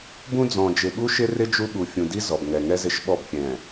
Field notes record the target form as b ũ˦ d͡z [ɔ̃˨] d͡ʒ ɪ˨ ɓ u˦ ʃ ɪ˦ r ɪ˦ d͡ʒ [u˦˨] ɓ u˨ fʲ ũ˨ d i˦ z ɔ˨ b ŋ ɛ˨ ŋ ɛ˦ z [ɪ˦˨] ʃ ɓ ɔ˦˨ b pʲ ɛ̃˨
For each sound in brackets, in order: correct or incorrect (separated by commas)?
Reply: correct, incorrect, correct